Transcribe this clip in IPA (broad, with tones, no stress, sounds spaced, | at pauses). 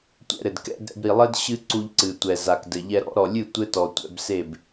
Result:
tʷ ɛ̰˧ ɾ ɘ˨ d k ɛ̰˧ d ɾ ɛ̰˧ b ɾ i˨ lˠ ɘ˦ d ɕ ɨ˦ ǀ u˧ ʎ ǀ ɨ˨ tʷ ɛ˨ z a˨ k d ɘ˨ ʎ ɛ˧ ɾ ɔ̰˨˦ ɾ ɔ˨ lʲ ɨ˦˨ tʷ ɘ˦ t ɔ˨ tʷ ɛ̰˧ b s e˦˨ b